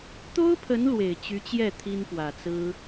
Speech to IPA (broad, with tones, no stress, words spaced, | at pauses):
t̪o˥ʊ̯pʰə˧˥n lwe˨˩ɪ̯t͡ɕy˧˥t͡ɕjɛ˥˩ t̪ʰi˥npwä˨˩t͡sɹ̩˥